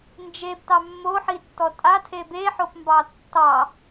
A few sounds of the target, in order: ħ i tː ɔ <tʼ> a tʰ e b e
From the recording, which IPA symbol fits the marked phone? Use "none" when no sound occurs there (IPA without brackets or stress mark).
tʼ